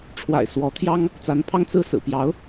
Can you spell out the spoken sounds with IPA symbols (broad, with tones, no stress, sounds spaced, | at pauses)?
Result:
ʈ͡ʂʰ w a̰˨˩ ɪ̯ s w ɔ˧˥ t̪ʰ j ɑ˥ ŋ | t͡s a˧˥ n pʰ ɑ˥ ŋ t͡s ɹ̩˥˩ s ɹ̩˨˩ p j ɑ˧˥ ʊ̯